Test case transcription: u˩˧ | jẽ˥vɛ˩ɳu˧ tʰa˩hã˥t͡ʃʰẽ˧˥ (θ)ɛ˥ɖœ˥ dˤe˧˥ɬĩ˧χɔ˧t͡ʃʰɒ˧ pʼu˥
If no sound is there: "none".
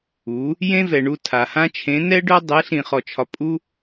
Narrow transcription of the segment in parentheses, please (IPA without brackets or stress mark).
n